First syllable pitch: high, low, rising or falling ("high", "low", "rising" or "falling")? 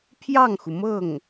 falling